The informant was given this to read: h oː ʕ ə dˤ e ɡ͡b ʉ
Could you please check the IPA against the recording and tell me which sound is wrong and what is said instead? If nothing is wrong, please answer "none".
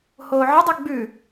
none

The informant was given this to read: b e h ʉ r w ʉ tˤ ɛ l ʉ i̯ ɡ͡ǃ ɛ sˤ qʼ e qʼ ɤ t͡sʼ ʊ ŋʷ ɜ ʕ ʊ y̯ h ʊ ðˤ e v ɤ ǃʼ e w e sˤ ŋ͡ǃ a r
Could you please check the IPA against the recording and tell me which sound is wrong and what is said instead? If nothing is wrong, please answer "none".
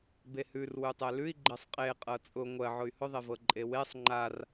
none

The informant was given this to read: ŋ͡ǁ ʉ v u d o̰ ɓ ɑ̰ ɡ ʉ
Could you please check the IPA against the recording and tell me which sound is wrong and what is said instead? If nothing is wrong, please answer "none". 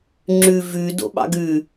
u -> ʉ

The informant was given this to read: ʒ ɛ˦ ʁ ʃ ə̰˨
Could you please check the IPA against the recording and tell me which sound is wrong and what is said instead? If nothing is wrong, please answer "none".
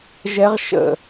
none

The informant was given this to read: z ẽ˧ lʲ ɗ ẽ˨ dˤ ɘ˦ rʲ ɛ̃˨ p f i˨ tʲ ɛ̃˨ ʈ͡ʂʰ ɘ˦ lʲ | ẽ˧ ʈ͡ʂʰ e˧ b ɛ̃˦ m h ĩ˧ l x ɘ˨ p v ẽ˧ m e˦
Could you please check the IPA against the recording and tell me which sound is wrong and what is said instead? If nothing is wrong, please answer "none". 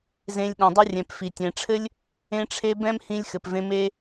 l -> lʲ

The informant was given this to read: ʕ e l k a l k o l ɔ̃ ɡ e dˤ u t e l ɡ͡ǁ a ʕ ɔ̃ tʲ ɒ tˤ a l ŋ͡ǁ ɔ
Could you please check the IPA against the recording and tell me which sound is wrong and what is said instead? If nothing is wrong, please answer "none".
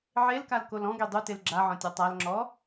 none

